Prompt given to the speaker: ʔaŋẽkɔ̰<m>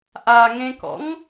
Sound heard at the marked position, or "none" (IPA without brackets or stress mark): ŋ